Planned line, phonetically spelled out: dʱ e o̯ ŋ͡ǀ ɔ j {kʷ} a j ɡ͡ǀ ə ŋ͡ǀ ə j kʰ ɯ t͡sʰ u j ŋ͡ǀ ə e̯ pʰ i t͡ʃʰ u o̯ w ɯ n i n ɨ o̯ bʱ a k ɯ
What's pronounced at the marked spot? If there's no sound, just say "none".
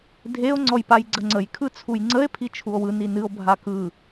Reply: p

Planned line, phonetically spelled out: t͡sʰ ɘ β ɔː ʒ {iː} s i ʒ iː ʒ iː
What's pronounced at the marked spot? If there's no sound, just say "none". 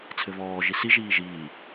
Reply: i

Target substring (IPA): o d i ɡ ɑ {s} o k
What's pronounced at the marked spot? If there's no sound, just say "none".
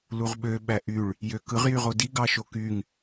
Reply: ʃ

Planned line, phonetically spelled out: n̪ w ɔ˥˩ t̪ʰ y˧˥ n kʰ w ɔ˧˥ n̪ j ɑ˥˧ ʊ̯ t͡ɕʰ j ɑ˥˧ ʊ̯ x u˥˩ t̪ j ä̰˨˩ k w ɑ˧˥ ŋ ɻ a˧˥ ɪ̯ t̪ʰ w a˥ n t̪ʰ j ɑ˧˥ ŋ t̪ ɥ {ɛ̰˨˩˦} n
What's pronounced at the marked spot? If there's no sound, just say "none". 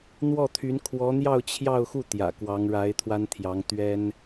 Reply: ɛ˥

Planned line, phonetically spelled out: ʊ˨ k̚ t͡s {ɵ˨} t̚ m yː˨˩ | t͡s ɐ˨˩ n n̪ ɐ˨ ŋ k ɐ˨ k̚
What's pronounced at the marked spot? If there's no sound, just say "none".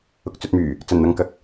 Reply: ɵ˨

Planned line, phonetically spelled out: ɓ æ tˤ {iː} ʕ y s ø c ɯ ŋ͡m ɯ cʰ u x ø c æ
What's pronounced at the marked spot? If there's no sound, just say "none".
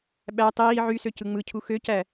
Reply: iː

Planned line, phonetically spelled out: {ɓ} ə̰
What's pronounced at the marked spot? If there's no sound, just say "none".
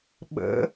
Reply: ɓ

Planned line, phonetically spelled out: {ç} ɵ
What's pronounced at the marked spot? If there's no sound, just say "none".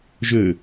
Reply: ʒ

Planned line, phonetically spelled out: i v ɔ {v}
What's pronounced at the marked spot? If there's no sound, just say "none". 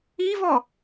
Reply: none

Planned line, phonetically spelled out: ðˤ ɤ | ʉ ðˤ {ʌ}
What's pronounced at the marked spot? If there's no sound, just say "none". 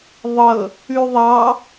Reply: ɑ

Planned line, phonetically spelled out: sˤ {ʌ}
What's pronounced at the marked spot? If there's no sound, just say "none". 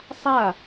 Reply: a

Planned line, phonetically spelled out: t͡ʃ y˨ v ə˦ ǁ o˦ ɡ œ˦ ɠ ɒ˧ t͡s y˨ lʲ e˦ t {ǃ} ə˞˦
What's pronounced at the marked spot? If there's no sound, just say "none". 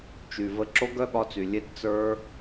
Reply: t͡s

